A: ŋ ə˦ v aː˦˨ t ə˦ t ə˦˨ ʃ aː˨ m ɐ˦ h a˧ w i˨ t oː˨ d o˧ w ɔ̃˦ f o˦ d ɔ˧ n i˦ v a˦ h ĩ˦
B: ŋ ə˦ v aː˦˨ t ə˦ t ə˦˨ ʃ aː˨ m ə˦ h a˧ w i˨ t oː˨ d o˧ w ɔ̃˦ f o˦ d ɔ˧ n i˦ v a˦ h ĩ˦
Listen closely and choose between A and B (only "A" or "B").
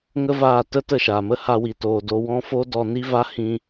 B